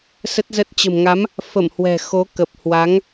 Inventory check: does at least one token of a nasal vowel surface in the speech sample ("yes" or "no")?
no